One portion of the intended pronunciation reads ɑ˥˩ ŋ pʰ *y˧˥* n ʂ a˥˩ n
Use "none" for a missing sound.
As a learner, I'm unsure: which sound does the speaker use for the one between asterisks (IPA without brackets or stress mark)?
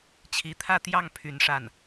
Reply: y˧˥